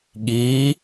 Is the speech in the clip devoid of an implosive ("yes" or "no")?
no